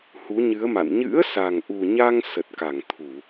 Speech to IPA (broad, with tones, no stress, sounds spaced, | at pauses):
h u˨˦ ɲ ɨ˨˦ ə̯ m a̰˧˨ n ɲ ɨ̰˧˥ ə̯ s a˨˩ ŋ ʔ u˨˩ ɲ a˧ ŋ s ə˨˩ t̚ k a˧˩ ŋ t̪ʰ u˧˩˨